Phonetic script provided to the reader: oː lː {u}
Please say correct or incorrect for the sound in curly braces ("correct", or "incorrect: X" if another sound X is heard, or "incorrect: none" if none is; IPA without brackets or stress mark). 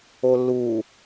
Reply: incorrect: uː